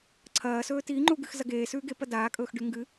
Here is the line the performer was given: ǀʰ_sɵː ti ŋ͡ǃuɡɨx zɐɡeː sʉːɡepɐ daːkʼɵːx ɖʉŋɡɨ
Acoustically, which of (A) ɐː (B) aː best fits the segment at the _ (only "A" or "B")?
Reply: A